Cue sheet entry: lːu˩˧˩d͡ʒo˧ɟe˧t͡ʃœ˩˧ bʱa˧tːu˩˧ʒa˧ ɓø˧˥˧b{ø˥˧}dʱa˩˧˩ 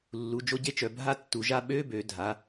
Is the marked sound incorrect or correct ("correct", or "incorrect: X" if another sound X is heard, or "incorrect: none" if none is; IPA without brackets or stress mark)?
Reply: incorrect: ø˩˧